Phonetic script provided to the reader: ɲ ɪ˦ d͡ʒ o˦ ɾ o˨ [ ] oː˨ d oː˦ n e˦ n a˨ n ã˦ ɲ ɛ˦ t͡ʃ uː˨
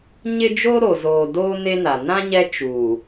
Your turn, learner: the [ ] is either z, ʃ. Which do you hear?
z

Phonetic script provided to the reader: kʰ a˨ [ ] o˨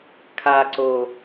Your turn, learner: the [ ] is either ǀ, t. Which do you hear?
ǀ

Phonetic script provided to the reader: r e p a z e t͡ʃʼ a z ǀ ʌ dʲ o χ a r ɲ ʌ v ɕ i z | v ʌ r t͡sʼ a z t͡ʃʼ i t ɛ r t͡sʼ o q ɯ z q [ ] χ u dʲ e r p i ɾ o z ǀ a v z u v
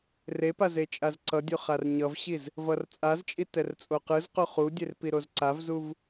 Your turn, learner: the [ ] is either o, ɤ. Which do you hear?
o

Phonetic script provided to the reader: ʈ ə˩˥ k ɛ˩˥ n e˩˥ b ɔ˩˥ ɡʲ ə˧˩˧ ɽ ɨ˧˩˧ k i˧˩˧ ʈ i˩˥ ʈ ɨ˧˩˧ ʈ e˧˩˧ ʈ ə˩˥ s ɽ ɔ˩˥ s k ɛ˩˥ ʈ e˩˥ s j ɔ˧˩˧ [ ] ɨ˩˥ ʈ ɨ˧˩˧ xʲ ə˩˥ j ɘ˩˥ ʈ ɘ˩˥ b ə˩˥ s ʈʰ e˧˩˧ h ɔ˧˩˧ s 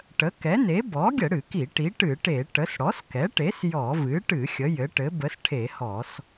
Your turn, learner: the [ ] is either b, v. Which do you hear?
v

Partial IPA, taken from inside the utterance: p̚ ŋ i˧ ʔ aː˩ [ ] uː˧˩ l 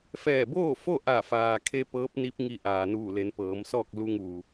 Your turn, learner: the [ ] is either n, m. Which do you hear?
n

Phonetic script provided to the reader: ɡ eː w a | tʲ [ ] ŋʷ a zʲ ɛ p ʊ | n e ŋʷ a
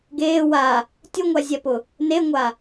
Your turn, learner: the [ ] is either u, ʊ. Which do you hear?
ʊ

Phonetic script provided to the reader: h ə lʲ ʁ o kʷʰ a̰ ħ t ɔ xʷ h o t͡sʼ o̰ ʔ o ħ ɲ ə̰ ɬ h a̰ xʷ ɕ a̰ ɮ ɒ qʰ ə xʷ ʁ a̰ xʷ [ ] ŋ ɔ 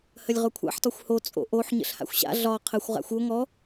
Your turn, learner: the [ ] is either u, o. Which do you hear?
o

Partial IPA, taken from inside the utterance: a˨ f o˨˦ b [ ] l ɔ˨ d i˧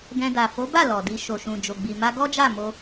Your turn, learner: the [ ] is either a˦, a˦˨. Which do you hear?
a˦˨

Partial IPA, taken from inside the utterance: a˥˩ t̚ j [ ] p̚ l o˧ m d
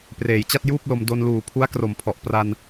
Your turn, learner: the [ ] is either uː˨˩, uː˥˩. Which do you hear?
uː˥˩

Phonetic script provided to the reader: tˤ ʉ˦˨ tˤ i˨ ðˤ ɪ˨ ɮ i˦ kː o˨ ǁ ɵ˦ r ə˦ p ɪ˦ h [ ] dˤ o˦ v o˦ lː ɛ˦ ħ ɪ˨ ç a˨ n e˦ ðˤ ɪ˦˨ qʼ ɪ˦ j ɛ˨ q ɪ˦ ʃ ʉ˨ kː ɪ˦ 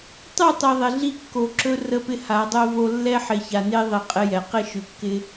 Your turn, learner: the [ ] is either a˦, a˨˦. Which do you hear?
a˨˦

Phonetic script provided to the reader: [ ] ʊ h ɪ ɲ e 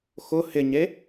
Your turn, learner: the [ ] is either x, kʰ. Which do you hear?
x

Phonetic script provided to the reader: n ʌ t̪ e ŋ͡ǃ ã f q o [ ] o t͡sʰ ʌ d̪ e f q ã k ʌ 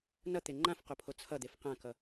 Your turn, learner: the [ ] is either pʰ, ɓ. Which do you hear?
pʰ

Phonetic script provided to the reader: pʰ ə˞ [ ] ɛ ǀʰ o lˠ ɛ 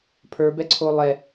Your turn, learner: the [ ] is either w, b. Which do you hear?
b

